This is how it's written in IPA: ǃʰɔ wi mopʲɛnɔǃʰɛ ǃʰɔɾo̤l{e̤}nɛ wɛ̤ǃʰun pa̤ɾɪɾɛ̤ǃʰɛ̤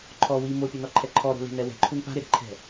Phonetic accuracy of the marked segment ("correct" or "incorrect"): correct